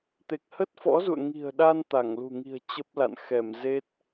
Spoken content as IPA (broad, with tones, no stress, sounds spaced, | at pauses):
t̪ e˨˩ k̚ h ə˦˥ t̚ f ɔ̰˧˥ z ṵ˧˨ ə̯ ŋ i̤˨˩ ə̯ ɗ a˧ n t̪ a˧˩ ŋ l ṳ˨˩ ŋ i̤˨˩ ə̯ t͡ɕ ə˦˥ p̚ l a̰˧˨ n x ɛ˧˩ m z e˦˥ t̚